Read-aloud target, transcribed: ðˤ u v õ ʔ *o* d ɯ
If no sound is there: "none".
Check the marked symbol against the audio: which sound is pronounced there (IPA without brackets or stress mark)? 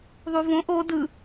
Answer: o